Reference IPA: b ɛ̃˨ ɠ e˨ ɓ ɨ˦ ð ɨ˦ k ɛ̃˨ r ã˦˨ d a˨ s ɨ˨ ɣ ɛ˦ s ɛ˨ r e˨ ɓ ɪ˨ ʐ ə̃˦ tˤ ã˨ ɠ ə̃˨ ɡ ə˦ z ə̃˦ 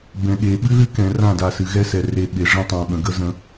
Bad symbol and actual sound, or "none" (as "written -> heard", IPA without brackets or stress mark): none